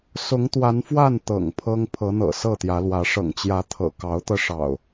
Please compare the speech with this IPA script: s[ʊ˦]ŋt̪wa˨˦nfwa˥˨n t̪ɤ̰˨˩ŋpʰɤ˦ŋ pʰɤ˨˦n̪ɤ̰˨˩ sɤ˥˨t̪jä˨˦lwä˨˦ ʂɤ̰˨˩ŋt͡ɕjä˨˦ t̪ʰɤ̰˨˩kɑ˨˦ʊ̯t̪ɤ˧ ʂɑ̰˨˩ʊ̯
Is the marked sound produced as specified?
no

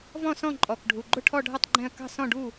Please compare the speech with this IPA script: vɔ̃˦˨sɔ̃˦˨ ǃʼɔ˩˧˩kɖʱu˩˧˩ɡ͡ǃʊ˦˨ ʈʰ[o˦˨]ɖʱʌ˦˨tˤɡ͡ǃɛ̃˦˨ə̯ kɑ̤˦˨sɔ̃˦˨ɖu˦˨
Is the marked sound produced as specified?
no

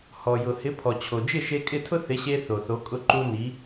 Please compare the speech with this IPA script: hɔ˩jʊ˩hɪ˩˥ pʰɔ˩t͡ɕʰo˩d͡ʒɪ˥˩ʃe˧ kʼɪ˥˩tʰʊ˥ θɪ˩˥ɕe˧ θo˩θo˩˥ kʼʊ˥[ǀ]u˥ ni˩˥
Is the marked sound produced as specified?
no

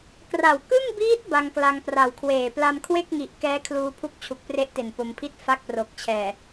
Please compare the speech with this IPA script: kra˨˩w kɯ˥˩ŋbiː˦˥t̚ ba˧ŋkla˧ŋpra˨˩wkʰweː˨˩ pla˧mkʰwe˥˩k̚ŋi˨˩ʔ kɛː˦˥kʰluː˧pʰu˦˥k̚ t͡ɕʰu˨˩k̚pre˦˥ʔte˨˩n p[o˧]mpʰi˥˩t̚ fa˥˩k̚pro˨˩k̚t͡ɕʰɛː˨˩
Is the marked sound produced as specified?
yes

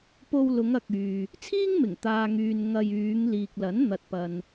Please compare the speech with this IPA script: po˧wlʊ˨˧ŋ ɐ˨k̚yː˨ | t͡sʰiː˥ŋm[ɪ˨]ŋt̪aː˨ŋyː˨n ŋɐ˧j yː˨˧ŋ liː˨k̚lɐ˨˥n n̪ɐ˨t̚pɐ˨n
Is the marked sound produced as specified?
no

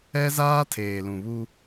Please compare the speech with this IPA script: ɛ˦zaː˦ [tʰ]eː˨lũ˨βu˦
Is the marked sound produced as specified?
yes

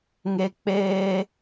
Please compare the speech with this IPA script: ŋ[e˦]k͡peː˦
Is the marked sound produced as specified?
yes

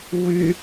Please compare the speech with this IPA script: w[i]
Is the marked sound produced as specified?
no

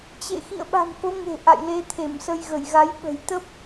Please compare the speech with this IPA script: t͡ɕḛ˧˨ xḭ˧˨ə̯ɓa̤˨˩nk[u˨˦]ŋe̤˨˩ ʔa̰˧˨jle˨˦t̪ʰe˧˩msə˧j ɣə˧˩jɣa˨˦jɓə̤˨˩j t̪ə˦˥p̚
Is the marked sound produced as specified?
no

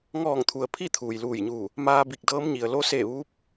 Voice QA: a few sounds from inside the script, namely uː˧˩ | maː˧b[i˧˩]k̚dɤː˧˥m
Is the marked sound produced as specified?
yes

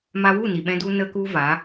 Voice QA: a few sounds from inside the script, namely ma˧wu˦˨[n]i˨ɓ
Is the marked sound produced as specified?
yes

